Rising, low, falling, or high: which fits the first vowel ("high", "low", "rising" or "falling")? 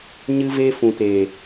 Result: high